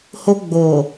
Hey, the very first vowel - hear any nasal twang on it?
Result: no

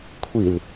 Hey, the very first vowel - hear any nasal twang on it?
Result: no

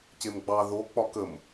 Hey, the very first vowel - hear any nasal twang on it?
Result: no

